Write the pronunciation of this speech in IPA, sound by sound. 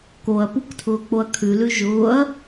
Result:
k o ɐ̯ p u k tʰ ʊː k͡p o ɐ̯ kʰ ʉ l ʉ ʒ ʊː ɐ̯

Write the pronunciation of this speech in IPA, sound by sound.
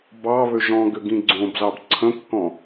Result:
b ɑ β ø ʒ ɔ̃ ɡ ʏ ɡ ĩ ɡ͡ǀ õ b z ɑ b ǀʰ ə̃ kː ɔ̃

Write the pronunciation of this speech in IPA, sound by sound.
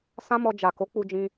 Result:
s ã˦ m ɔ˧ d͡ʒ a˨ k o˨˦ k͡p u˧ d͡ʒ ĩ˧

